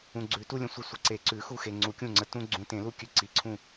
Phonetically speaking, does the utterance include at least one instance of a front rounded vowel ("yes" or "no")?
no